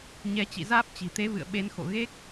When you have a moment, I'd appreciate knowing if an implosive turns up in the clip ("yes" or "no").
yes